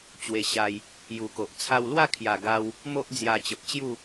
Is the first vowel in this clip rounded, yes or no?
no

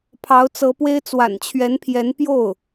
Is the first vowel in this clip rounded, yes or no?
no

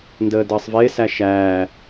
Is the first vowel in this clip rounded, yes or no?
no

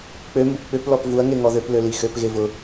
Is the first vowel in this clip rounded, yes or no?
yes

